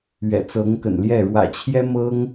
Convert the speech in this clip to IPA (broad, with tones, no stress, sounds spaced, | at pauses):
ɥ ɛ̰˨˩ t͡s ɤ˧˥ ŋ k ə̰˨˩ n l j ɛ˥˩ ɻ w ä̰˨˩ t͡ɕʰ j ɛ˥ m ɤ˥ ŋ